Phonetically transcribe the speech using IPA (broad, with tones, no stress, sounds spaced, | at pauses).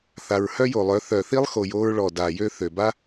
θ a˨ ɹ h œ˦ j o˨ lˠ œ˨˦ θ œ˨ θ i˦ lˠ x o˨ j o˧ ɹ ɭ ɔ˨ d a˨ j ø˦ θ ø˨ b a˦